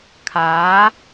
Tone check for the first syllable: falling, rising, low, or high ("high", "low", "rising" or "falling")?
rising